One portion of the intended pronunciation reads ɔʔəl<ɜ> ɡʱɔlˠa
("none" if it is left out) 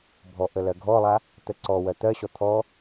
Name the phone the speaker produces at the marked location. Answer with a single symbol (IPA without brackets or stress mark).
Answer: ɜ